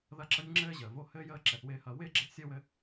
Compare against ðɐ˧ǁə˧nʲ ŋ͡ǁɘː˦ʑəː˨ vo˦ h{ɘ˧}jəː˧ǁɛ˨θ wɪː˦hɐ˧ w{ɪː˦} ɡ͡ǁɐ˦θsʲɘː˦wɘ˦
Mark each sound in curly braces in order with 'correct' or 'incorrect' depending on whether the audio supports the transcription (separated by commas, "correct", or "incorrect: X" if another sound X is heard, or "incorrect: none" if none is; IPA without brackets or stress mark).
incorrect: ɘː˧, correct